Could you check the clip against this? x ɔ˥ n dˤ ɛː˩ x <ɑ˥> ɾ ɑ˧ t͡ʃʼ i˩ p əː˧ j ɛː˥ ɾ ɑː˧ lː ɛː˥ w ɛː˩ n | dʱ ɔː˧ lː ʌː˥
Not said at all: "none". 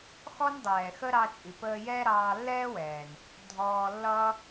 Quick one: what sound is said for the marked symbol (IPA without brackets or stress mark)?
ə˥